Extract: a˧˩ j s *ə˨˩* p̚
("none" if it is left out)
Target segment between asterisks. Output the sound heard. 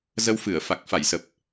ə˨˩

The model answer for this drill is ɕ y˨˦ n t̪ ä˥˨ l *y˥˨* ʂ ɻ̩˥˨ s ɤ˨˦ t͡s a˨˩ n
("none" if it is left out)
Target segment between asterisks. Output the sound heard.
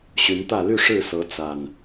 y˥˨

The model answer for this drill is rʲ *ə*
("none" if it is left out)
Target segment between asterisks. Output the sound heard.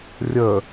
ə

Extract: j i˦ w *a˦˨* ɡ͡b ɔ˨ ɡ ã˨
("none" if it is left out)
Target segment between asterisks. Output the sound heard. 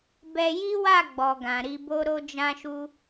a˦˨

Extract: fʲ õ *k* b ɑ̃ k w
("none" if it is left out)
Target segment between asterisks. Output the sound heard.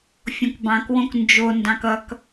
k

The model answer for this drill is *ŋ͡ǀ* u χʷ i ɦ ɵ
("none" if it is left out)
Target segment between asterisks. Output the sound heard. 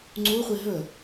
ŋ͡ǀ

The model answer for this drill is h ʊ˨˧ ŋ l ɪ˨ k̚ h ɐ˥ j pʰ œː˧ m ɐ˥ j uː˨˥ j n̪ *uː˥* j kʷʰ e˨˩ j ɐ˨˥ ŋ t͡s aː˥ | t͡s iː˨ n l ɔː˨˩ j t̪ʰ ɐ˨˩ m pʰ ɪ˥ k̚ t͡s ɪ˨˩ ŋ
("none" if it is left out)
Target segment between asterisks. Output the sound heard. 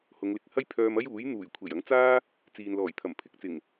uː˨˩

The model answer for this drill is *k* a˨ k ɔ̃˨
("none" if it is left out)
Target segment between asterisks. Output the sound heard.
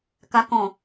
k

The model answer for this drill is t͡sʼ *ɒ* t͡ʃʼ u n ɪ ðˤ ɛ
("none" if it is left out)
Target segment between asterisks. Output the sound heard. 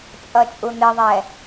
ʌ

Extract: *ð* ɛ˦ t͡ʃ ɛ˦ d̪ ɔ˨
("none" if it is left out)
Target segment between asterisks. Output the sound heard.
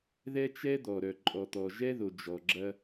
ð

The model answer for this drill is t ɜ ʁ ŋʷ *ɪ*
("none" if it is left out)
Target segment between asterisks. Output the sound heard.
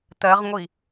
i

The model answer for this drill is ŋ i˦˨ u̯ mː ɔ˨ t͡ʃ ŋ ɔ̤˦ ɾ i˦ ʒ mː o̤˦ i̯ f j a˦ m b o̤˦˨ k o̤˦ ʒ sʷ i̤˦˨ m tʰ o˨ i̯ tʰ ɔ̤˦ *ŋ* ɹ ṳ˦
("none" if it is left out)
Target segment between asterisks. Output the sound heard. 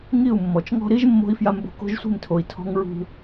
ŋ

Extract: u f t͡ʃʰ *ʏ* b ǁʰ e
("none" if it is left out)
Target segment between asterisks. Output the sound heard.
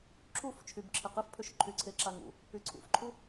y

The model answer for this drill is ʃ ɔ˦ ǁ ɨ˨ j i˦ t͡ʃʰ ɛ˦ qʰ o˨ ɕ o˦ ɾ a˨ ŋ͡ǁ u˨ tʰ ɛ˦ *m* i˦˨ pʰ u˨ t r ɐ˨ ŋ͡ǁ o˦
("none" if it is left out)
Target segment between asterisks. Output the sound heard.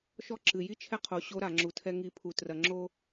ŋ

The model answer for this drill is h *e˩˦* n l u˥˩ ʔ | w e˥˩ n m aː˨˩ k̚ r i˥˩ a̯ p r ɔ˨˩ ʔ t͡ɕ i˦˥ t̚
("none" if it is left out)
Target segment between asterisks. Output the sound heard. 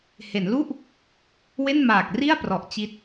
e˩˦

